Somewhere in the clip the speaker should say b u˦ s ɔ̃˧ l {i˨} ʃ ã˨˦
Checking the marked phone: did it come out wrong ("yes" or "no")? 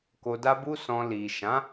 no